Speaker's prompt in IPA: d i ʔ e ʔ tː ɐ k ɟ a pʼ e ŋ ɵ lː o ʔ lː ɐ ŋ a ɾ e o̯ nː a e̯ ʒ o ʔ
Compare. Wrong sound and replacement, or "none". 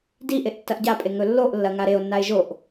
k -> ʔ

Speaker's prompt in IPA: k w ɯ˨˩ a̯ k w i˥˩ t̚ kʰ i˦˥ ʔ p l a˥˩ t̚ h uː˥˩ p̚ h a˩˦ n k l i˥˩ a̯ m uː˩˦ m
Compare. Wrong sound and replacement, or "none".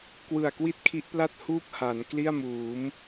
none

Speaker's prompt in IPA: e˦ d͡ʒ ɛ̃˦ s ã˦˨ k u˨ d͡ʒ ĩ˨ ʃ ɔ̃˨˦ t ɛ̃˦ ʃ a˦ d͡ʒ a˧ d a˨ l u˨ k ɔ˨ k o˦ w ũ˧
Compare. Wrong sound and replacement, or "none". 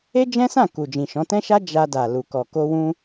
o˦ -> o˧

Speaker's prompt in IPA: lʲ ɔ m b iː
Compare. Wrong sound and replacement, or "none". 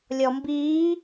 none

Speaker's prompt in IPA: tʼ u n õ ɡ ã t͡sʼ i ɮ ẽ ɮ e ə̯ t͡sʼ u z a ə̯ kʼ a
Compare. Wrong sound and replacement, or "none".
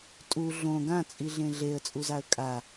n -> ɮ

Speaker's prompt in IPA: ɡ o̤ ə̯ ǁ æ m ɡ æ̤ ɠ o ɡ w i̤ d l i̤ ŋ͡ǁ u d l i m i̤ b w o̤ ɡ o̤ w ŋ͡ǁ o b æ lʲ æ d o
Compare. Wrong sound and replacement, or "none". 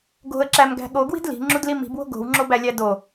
none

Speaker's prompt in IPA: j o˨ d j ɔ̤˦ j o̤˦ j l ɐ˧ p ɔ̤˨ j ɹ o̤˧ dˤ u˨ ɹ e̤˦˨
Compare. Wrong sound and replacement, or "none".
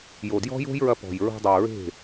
l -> ɹ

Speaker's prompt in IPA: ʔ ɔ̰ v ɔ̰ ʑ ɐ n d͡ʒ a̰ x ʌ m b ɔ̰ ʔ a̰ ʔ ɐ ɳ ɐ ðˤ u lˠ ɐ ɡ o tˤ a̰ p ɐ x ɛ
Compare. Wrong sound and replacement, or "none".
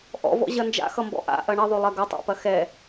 u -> o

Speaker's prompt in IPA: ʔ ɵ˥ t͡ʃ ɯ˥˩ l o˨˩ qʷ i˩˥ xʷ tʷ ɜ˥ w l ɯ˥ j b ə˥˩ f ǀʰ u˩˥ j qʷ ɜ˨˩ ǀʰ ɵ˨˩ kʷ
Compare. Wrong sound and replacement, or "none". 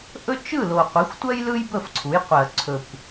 w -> j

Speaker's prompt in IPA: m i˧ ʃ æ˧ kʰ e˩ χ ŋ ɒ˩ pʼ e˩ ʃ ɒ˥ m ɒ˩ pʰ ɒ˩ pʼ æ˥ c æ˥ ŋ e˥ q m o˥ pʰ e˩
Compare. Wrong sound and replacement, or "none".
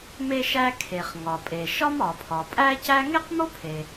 i˧ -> e˧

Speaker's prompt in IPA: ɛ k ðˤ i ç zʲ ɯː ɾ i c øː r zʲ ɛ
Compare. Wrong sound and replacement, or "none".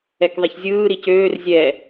none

